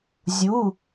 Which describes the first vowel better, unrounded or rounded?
rounded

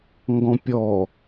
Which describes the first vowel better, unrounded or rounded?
rounded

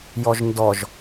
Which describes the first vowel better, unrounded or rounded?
rounded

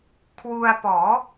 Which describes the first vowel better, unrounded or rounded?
rounded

